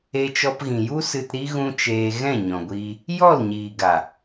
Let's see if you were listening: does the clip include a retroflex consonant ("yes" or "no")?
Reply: no